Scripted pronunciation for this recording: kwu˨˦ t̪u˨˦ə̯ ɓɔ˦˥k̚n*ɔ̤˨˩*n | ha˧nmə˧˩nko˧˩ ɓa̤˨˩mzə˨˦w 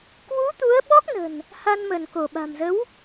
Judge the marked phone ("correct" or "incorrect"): incorrect